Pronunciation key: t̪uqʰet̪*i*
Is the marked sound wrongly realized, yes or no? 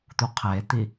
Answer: no